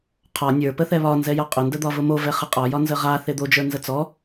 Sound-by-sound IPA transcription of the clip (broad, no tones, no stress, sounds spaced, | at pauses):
qʰ ɒ nʲ ə˞ p ə θ ɛ β ɒ n z ɛ j ɒ qʼ ʊ n d ə d̪ ɒ v ʊ m o v ɛ χ ə qʼ ɒ j ɒ n z ə ʁ a θ e d̪ o d͡ʒ ə˞ n z ə t͡s ɔ